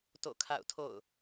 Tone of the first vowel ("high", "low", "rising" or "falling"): falling